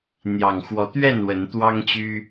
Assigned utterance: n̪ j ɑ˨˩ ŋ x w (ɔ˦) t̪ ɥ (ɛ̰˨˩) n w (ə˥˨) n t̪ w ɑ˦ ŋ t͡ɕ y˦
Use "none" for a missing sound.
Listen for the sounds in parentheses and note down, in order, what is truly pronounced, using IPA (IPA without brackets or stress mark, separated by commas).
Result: ɔ˨˦, ɛ˥˨, ə˨˦